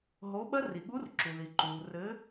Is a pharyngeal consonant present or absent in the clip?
absent